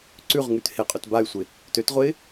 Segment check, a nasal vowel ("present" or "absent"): absent